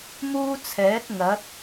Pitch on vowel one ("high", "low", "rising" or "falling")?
high